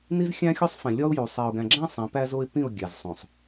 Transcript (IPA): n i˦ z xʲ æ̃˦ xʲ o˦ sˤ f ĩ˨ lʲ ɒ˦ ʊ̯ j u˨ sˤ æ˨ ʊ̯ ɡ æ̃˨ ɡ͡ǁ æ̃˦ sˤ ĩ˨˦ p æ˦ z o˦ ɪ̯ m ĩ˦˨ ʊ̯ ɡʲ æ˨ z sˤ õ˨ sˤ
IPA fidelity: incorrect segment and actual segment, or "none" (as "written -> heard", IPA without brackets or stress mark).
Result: m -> p